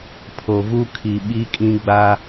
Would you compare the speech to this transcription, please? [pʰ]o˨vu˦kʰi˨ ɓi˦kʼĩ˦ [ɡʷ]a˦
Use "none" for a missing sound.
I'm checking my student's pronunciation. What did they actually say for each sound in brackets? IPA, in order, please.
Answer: pʰ, ɡ͡b

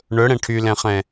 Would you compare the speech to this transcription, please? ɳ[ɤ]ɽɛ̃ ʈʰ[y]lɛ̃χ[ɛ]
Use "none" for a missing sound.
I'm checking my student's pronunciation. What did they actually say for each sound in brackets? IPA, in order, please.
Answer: ɵ, y, ɛ̃

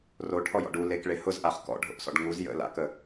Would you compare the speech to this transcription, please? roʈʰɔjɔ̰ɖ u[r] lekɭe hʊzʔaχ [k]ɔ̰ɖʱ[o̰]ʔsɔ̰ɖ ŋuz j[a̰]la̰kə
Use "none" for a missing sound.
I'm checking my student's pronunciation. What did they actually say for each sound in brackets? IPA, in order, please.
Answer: none, k, o̰, ə̰

